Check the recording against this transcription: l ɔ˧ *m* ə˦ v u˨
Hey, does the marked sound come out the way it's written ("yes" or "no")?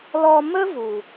yes